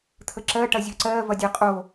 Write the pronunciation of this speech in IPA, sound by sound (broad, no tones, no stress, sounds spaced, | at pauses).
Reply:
t̪ʰ ə ǁ ɜ ʈ ɐ zʲ əː ǀ ɜː v ɐ dʲ ɛ qʼ o